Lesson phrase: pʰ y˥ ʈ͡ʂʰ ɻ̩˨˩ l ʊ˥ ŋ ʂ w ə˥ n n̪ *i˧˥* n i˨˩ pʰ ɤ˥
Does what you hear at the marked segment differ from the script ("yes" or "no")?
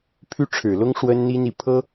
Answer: yes